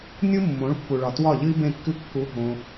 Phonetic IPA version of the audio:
nʲ u˦ mː õ˨˦ ɭ pː u˨ ɭ ɒ˨ t w ɒ˦˨ ʎ ɨ˦ i̯ b ẽ˦˨ kː ɨ˦ kː u˧ ɦ õ˧

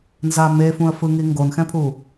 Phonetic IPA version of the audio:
n z aː m e f ũ ə̯ f ɯ ŋ i ŋ ɡ o n x ɛ̃ pʰ u

